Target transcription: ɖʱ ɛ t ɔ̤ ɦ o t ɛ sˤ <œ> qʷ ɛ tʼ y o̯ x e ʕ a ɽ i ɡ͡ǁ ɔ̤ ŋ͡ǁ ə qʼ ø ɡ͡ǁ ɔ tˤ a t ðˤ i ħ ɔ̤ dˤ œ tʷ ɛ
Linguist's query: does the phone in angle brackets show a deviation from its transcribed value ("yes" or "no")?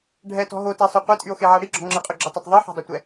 yes